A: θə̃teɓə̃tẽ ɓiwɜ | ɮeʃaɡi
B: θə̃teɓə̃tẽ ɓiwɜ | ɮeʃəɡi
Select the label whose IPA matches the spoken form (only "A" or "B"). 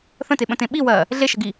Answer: B